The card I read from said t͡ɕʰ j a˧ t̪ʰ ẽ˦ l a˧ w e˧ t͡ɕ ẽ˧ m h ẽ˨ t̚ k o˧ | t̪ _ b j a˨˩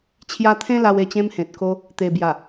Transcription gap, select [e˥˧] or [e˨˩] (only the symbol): e˨˩